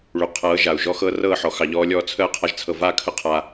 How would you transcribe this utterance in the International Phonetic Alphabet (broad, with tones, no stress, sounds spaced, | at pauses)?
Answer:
ɭ y˨ qʰ ɤː˨˦ ʒ a˨ u̯ ʒ ɔ˦ x ɤ˦ r ɤː˦˨ ħ ɔ˨ x ɑ˨ ʎ ɔː˧ lʲ ɔː˧ t͡sʰ əː˦ qʰ a˧ ʒ t͡sʰ ɤ˨ v a˦˨ kʰ ə˦ qʰ a˧